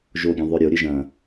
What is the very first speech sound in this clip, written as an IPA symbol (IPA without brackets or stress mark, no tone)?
ʒ